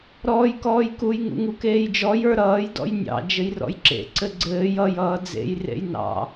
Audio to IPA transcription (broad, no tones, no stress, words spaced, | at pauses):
ɾɔːjkɔːjkuj ŋṵŋukeːjd͡ʒɔj ə˞ɾʌːj dɔ̰jnʲɑ̰ d͡ʒɘjrɔ̰jǁḛ ǀɘɡ͡ǀɘːj ʌj ʌːd͡zḛj rḛjnɑ̰